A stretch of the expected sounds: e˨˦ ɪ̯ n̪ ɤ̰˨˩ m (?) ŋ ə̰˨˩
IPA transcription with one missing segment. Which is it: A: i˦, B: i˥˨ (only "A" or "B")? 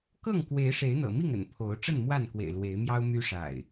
B